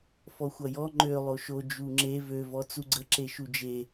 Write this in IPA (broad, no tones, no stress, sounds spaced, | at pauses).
f ɔ xʷ ʌ j ɔ ŋ͡ǃ ø lˠ o ʃ o d͡ʒ u ŋ͡ǁ e v ø v ɔ t͡s u ɡ͡ǀ ə ǁ e ʃ u d͡ʒ e